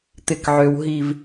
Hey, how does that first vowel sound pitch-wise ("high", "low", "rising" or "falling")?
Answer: low